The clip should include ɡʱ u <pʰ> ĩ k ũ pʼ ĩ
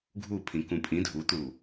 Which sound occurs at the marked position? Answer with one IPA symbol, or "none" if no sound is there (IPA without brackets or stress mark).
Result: pʰ